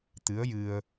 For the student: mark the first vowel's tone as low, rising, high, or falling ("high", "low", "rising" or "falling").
rising